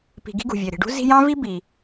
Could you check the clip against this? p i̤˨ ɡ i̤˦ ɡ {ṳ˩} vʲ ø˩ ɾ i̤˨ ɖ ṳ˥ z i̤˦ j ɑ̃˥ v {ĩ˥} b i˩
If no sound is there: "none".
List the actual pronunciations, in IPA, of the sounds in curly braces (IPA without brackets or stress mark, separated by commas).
ṳ˩, i˥